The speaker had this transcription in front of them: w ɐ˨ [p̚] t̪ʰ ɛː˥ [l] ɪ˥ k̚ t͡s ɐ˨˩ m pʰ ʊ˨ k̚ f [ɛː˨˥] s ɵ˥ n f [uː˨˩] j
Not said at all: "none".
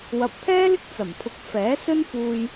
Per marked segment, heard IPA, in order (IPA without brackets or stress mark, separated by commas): p̚, l, ɛː˨˥, uː˧